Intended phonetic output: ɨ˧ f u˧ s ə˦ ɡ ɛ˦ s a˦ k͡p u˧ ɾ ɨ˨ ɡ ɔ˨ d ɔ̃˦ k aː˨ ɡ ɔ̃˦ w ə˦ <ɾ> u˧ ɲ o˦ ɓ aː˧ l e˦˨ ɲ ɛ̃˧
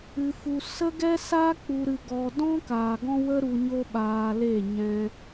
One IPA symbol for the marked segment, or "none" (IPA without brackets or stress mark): ɾ